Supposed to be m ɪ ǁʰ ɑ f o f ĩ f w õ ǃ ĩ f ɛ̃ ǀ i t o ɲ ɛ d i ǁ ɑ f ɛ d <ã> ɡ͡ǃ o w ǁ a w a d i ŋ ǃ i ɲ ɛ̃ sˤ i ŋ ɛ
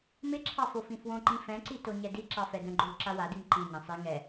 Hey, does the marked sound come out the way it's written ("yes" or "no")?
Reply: no